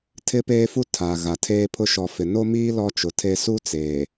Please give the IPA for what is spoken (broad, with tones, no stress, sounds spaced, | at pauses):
tʰ ɪ˦ p eː˦ f u˦ tʰ a˨ ɣ a˨ tʰ eː˦ pʰ ʊ˦ ʃ ɔ˨ f ɪ˨ n o˦ m iː˦ l ɔ˦ t͡ʃ ʊ˨ tʰ e˦ s u˦ t͡s eː˨